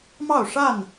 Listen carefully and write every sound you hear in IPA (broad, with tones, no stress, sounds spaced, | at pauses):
m ɑ˥˨ ʊ̯ ʂ a˥˨ n